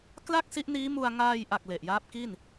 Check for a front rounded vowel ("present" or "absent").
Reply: absent